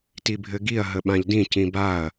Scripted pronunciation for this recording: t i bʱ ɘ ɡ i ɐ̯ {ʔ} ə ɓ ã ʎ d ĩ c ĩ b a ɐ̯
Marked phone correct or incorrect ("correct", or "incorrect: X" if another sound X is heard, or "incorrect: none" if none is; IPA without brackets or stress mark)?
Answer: incorrect: ɦ